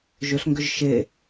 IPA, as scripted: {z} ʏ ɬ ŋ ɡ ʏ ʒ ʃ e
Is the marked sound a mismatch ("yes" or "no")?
yes